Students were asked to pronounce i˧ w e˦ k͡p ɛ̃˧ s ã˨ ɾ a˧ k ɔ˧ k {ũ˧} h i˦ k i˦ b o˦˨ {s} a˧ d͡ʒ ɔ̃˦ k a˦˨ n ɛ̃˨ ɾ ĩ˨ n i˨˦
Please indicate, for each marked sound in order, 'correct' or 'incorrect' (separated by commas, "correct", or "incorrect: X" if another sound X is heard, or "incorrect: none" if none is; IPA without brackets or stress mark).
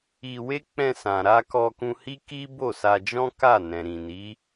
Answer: correct, correct